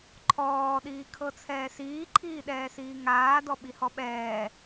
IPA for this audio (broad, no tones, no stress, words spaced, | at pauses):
ǃʰɔː ɗiːkʰɤt͡sʰɛːsiː ǃʰiːɗɛːsiːŋaː dɔɓihɔɓɛː